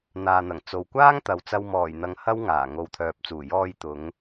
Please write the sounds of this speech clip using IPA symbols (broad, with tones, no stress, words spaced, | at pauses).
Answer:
n̪aː˨n̪ɐ˨˩ŋ t͡so˨wkʷaː˥ŋt̪ɐ˨w t͡sɐ˧wmɔː˨˩jn̪ɐ˨ŋ hɐ˥wŋaː˨˩ ŋo˨˧wt̪ʰœː˨p̚t͡suː˨˩ jɔː˧jt̪ʊ˨˧ŋ